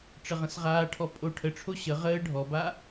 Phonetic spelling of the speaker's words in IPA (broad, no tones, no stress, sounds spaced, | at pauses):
ʈ͡ʂ ə ʁ ə̃ s ʁ aː ʈʰ ɔ pʼ o ʈʰ ə ʈ͡ʂʰ o ɕ ə ʁ əː ɖʱ ɔ b a